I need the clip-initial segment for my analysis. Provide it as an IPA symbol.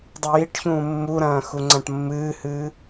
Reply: dˤ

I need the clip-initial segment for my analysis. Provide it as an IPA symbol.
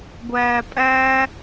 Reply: ɡʷ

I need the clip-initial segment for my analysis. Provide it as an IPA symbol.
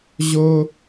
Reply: ʑ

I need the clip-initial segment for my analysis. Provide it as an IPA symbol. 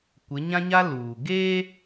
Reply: kʷ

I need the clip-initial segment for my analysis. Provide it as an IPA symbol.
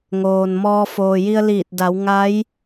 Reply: ŋ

